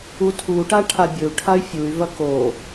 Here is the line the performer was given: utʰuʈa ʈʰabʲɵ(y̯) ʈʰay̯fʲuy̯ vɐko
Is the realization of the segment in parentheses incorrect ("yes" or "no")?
yes